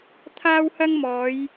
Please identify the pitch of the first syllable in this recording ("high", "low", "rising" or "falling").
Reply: high